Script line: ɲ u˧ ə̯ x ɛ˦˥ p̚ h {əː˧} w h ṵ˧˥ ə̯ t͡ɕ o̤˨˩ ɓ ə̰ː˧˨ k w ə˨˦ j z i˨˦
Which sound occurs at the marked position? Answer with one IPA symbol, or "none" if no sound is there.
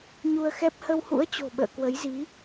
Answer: ə˧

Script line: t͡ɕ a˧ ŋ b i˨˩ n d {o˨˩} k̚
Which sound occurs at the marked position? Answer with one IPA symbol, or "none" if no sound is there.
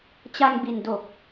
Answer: o˨˩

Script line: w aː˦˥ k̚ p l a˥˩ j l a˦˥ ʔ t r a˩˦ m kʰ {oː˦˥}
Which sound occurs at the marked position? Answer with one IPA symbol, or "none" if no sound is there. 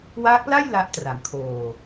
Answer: oː˨˩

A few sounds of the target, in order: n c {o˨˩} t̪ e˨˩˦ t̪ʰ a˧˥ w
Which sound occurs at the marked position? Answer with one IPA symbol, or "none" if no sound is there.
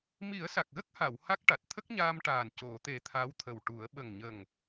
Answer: o˨˩˨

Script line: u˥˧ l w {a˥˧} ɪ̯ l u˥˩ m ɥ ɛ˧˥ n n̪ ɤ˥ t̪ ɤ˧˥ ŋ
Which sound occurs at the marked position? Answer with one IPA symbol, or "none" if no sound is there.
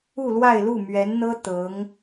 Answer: a˥˧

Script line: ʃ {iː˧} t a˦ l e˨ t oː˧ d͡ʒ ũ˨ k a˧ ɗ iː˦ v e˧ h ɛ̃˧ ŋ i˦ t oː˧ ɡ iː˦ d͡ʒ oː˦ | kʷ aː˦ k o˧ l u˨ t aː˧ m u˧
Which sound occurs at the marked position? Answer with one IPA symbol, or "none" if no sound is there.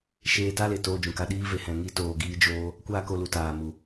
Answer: eː˧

